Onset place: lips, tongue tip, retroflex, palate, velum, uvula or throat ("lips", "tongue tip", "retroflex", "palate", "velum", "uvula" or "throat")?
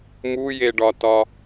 lips